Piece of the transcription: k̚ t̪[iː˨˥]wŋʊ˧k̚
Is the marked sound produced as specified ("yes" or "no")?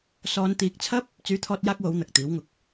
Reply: yes